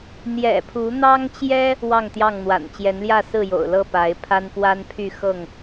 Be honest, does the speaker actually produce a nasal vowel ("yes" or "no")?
no